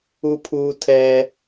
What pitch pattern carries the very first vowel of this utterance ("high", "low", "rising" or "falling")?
high